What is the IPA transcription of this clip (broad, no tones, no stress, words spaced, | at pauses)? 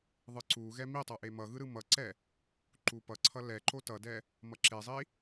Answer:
ðˤɯǀuɣɛ mitˤʌ ʔemʌɣɯ ɾɯmʌǀɛ | ǃupʌǀʰʌ lɛǃo tʌdɛ | mʌǁezˤi